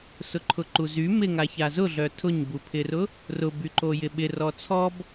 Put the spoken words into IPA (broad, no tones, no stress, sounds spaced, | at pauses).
s ʊ ǃʰ ʊ ǃ u z y m ɪ ŋ a ç a z ʊ ɮ œ tʰ ʊ ɲ b u pʰ ɪ r ʊ | r ʊ b y ǃ o j ɪ ɓ ɪ r ɔ t͡sʰ ɔ b